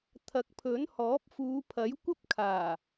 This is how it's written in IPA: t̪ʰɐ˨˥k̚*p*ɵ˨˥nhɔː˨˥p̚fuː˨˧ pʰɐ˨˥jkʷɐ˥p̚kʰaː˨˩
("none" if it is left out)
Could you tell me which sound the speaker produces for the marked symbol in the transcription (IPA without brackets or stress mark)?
pʰ